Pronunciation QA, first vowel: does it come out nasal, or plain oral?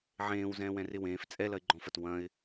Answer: nasal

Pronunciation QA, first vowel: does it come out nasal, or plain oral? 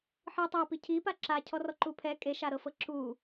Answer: oral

